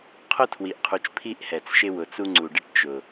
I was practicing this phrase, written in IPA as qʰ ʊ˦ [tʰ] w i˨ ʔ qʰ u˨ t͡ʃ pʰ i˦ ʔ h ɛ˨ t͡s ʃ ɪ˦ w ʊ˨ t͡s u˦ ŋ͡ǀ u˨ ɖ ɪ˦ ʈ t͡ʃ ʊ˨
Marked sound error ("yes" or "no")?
no